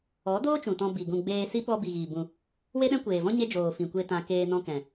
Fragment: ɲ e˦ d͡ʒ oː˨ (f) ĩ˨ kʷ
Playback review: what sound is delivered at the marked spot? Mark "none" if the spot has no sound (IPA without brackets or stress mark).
f